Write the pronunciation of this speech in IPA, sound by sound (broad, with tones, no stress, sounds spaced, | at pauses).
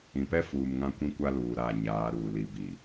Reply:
ĩ˨ p ɛ˦ f uː˨ m ŋ ã˦ kʷ ĩ˦ kʷ a˦ l uː˨ ɾ aː˦˨ ɲ aː˨˦ ɾ uː˨ l i˨ b i˨